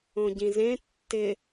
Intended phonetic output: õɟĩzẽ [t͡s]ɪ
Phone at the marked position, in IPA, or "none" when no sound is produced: tː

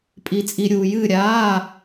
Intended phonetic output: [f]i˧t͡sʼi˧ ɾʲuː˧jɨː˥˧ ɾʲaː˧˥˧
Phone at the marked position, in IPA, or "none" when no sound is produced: pʼ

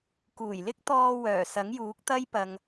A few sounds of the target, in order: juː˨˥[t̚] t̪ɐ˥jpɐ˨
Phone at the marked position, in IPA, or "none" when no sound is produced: k̚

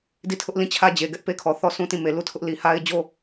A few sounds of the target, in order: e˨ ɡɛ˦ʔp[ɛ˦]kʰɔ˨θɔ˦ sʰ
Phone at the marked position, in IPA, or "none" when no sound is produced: e˦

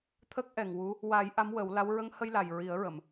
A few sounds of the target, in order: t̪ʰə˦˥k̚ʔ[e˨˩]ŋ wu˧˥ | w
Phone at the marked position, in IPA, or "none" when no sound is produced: ɛ˨˩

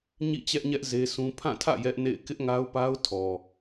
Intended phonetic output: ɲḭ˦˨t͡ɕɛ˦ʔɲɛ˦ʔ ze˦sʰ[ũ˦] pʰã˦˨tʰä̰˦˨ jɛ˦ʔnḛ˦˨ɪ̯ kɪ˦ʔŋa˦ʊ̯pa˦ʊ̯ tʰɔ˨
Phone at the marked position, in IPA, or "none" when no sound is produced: ũ˦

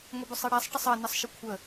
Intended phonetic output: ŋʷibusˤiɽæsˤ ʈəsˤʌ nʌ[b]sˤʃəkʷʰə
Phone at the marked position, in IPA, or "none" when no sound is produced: none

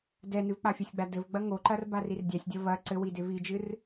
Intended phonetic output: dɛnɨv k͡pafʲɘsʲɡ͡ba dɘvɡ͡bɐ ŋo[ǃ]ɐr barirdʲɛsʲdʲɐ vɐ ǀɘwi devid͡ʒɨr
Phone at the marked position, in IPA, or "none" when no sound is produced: ǃ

